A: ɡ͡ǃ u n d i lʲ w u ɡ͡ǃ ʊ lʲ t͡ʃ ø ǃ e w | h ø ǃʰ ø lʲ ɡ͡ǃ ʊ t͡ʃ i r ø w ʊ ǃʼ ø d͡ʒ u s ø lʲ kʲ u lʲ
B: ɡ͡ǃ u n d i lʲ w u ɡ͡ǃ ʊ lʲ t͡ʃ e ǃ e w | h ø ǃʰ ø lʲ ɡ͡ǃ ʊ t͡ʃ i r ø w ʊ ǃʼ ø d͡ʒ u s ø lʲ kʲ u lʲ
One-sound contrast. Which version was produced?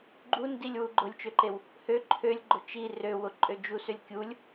A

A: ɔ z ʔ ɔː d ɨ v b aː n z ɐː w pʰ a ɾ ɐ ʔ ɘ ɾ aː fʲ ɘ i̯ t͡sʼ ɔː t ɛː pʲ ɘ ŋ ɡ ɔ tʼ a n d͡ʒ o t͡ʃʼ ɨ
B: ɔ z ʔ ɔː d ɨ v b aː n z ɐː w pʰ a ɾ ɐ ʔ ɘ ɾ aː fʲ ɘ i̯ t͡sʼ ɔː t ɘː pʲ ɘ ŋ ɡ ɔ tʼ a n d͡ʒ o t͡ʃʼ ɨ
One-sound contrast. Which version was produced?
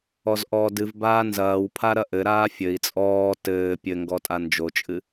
B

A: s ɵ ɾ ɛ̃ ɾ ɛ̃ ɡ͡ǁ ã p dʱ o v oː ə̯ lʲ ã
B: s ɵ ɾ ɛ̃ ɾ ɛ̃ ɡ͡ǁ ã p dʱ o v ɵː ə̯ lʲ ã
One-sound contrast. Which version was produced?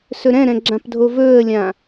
B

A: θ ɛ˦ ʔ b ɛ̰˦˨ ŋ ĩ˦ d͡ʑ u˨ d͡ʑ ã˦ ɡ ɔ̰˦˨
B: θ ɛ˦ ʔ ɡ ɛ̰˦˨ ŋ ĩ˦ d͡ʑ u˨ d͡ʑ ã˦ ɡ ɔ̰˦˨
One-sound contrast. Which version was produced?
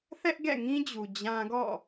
B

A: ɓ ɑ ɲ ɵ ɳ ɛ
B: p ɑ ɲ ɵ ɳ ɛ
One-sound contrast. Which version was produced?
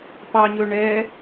B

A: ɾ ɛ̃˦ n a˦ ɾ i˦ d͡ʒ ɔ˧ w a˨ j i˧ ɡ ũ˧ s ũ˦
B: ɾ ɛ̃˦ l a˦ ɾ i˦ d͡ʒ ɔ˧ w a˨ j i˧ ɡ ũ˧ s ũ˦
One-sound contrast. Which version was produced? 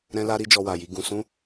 B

